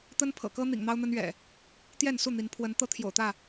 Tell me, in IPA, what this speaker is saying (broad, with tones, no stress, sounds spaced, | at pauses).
t̪ ə˦ n pʰ ɤ̰˨˩ k ɤ˦ n̪ ḭ˨˩ ŋ n̪ ɑ˦ ʊ̯ n̪ ə˦ n ɥ ɛ̰˨˩ | t̪ j ɛ˥˨ n s u˥˨ n̪ i˨˦ n pʰ w ə˨˦ n t̪ ɤ˦ t̪ʰ j o̰˨˩ ʊ̯ t̪ ä˥˨